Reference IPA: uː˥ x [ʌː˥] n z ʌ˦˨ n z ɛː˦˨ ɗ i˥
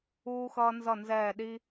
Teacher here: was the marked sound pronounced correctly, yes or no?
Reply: yes